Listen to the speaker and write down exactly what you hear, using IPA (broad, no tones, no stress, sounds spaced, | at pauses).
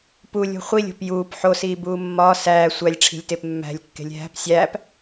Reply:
p u lʲ o̤ χʷ i lʲ o̤ p j uː p ħ o s iː b uː mː ɒː s æː sʷ æ lʲ ʈ͡ʂʰ i̤ lʲ t e p mː æ̤ lʲ kː e̤ lʲ ɦ æ̤ p sʲ æː p